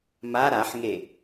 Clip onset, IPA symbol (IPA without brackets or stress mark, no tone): m